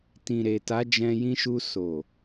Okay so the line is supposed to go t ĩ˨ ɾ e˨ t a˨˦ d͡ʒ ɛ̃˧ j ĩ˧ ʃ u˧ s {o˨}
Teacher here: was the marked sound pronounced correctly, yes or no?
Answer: yes